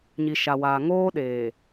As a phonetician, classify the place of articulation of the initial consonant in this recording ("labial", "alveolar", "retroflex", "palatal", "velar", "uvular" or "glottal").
palatal